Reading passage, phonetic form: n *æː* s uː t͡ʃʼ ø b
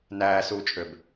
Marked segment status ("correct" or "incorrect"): correct